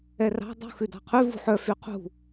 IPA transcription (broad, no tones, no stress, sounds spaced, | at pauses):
ɛ r ɑ̤ dˤ ṳ x ʉ d ɑ̤ qʰ ʉ v ṳ ħ œ f y qʰ ṳ